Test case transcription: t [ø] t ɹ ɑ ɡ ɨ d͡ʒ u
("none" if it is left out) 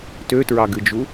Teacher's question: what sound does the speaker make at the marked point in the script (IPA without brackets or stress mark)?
ø